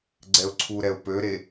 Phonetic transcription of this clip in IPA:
ɡ͡ǀ ɛ ʊ̯ ǀʰ u ɾ ɛ ʊ̯ p ø ɾ e

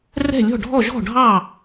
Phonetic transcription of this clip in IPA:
r ɛ̤˥˩ lʲ ɔ̤˥˩ ɖʱ ɔ˥˩ ʒ ɔ̤˥˩ ɖʱ ɑ˥˩

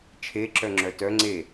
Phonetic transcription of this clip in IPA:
t͡ʃʰ e ǁ œ ŋ͡ǁ œ t œ ŋ͡ǀ e

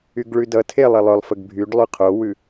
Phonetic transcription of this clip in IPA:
y ɡ ɭ ʉ d ʌ tʰ e lˠ e lˠ œ lˠ f ə ɡ bʱ y ɖ lˠ y qʰ o w ʉ

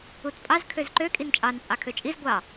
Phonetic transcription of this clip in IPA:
u t pʼ ɑ z kʰ ø z ǃ ø kʼ i n t͡ʃʼ ɑ n t͡sʼ ɑ kʰ ø t͡ʃʼ i z ɡʷ ɑ

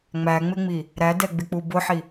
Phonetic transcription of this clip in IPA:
ŋ͡m æ ŋ͡m ɪ ŋ͡m i | ɾ æ d ɛ ɡ͡b ɪ k͡p u b ʊ ħ i

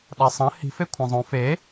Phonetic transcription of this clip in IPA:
ɗ a sˤ ɐ̃ h i̤ f e kʷʰ ɐ̃ zˤ õ f e

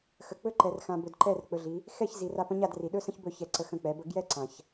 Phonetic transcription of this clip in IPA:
x ə˨ k͡p ɵ˦ ǃ ɛ˨ r x ã˨ b ɵ˨ d ǃ ɛ˦˨ r k͡p ɵ˧ ɮ i˨˦ | x ɛ˦˨ ç z i˨ r a˧ p ə̃˦ ɲ a˦˨ d r i˨ ɗ ɵ˦ s ə̃˦ ç b ɵ˦˨ ç ɛ˧ ǀ ə˧ x ə̃˦˨ k͡p ɛ˨˦ b ə˧ ɡ j ɛ˦ ǀ ã˨ ç

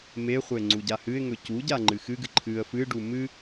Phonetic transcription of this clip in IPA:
m e χʷ e ŋ͡ǀ u ɟ a h ɨ ɪ̯ ŋ ɵ c u ɟ a ŋ͡ǃ ɨ x ɨ ɡ ɨ ǃʰ ɨ ə̯ f ɨ ɖ u m ɨ

